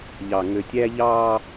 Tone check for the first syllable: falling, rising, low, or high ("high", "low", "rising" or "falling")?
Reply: low